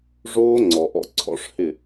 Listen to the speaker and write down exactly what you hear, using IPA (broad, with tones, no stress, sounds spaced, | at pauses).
ʐ oː˦ ŋ͡ǀ ɔ˨ ʔ ɔ̰˧ ǀʰ ɔ̰˧ ʂ h ɪ˦˨